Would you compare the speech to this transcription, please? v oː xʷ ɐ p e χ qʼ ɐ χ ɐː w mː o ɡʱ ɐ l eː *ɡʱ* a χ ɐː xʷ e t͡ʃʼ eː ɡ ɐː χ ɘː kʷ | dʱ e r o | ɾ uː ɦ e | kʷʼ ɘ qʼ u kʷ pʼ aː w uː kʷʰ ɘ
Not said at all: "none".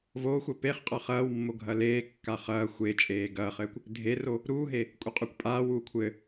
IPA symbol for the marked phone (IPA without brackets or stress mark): kː